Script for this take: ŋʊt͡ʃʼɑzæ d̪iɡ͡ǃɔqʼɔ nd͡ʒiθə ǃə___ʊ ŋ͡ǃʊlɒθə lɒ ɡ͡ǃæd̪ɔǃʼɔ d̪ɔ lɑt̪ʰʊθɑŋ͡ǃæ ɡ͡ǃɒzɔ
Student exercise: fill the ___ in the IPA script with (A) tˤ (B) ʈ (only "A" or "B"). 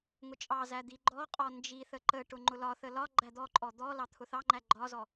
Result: B